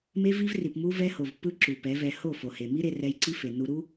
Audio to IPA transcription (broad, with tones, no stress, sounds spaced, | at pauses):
m e˦ v i˦ v r i˨ p m u˧ v ɛ˧ h o˨ v pː ɯ˦ ǁ u˨ p ɛ˨˦ v ɛ˧ h o˦˨ f o˨ h e˨ m i˦ ɾ e˧ r ɛ˧ j ǀ i˦ f e˨ nː u˧ ɾ u˦